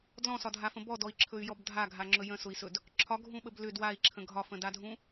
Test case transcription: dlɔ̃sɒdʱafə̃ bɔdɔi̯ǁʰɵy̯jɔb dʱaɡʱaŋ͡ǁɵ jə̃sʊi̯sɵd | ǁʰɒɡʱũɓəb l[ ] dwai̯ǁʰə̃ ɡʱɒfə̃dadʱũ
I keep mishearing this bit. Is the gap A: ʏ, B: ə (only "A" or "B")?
A